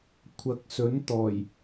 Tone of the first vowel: low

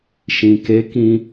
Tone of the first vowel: low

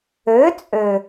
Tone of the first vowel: rising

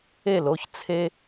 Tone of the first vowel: falling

